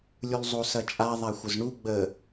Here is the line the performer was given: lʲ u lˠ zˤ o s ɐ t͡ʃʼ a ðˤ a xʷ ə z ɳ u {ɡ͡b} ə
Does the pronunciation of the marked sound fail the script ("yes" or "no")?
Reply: no